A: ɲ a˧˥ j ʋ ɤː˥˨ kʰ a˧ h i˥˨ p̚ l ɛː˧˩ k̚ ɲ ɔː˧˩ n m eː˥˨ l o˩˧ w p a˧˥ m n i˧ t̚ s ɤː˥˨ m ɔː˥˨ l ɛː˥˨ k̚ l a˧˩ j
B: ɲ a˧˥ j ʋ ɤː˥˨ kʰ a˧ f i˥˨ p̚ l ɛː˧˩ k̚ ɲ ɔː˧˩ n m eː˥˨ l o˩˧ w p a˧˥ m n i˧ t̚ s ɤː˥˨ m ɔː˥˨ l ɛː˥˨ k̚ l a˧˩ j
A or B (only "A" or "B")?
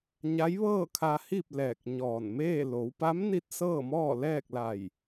A